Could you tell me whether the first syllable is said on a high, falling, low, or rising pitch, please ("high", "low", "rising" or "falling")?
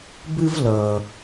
high